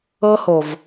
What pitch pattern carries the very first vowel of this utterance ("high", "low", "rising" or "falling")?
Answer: high